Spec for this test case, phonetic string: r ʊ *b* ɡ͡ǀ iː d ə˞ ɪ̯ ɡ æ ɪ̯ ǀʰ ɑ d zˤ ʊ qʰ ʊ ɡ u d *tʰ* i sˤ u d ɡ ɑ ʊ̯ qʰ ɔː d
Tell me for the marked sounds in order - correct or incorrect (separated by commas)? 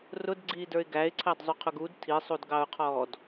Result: incorrect, correct